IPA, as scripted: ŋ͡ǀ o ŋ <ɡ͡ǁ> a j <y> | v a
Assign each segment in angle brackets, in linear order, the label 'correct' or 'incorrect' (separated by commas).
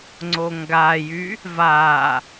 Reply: incorrect, correct